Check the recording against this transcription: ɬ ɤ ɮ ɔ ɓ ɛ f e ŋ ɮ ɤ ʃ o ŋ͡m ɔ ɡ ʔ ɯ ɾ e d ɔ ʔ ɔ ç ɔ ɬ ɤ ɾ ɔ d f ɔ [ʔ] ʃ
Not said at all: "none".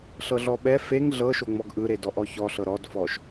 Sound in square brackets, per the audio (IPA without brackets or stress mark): none